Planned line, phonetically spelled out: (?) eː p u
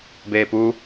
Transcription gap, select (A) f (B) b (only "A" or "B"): B